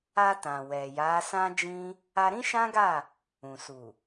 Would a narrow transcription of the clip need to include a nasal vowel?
yes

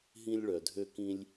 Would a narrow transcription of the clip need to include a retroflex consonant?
yes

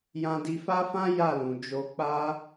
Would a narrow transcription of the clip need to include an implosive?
no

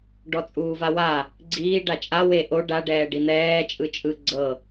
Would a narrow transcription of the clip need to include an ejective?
yes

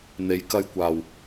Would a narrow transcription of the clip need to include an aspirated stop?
no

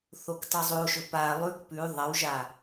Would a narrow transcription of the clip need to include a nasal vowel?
no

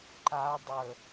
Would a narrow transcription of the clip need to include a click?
yes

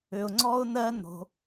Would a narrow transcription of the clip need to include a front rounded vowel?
yes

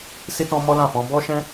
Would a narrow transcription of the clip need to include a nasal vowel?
yes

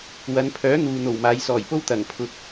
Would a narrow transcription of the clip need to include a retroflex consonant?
no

